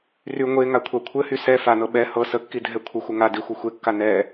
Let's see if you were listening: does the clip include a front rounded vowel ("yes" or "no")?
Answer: yes